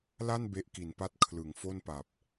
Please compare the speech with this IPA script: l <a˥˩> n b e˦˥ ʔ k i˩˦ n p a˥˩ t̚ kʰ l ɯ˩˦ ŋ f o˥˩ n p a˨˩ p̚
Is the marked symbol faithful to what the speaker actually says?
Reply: yes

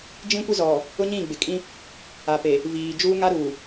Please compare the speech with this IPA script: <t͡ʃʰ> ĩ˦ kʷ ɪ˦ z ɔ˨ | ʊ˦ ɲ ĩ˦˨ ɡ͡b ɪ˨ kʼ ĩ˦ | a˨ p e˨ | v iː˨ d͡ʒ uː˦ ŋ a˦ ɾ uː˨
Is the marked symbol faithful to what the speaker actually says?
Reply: no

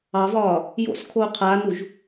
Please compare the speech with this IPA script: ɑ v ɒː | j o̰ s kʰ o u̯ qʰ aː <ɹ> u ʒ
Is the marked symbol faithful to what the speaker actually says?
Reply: no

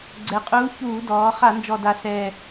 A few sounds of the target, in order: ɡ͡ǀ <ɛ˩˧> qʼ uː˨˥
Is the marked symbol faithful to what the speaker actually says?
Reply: yes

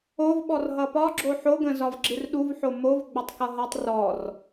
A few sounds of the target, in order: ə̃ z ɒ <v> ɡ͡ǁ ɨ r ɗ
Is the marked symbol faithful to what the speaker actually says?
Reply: yes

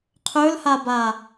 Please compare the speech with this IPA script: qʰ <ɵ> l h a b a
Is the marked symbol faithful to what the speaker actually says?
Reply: yes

